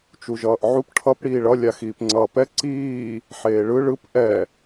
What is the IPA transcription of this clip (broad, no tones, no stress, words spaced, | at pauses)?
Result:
t͡ʃuʒʌːʔʕup ʈʰʌp ɽiːɭʌ lʲaxiːpŋ͡ǀʌːpɛ ǀiː | ħeːɭɯ ɭɯp ʔɛ